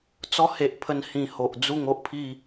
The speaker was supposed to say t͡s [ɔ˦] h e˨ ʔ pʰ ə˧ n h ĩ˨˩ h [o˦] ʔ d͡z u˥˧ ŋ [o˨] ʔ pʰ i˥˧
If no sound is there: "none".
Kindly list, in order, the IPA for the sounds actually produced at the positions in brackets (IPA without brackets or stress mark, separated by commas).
ɔ˦, o˨, o˦